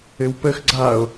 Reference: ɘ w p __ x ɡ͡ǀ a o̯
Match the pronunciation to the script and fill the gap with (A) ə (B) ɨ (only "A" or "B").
A